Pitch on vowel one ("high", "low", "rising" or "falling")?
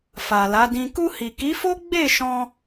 low